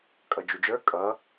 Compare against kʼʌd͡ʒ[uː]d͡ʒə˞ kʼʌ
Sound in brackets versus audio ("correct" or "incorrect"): incorrect